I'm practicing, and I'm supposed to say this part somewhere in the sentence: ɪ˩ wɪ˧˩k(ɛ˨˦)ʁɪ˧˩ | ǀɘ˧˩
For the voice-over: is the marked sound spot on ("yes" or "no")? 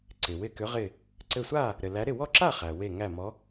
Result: no